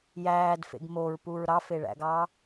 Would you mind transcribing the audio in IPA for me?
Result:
jæːdfḛɡ moɹpuːɹ ɾɑfeɭæ̰ɡɑː

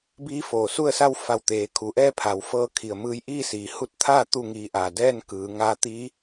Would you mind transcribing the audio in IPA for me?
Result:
biː˧˥foː˩ su˥˨ə̯sa˥˨w fa˧˩wt̪eː˩˧ kʰuː˩˧ʔɛː˥˨pʰa˩˧wfɤː˧ kʰi˩ə̯mɯː˧jʔiː˥˨siː˩˧ hu˧t̚t̪ʰaː˥˨ t̪u˥˨ŋiː˧ʔaː˧˩ dɛː˥˨nkɯː˩˧ŋaː˧˥t̪iː˧˥

